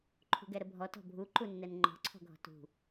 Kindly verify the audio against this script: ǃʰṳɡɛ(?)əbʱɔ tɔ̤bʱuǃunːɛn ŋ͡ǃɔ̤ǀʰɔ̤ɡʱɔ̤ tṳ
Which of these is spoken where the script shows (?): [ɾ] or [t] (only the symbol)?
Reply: ɾ